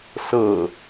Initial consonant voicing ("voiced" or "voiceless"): voiceless